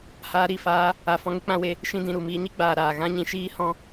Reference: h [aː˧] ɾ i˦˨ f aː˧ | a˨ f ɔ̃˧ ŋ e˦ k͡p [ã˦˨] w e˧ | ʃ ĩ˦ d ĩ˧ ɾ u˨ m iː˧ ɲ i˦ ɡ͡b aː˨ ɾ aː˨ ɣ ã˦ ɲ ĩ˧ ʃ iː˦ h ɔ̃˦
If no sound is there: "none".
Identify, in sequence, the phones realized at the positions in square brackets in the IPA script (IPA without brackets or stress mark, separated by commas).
aː˧, ã˧